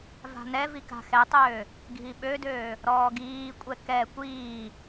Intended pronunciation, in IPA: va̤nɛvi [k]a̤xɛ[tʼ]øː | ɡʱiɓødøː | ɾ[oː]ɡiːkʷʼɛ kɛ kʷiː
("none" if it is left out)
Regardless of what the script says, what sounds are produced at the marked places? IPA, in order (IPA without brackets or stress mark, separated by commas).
k, tˤ, ɔː